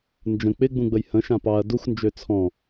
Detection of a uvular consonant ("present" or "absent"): absent